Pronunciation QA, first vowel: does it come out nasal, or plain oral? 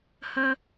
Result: oral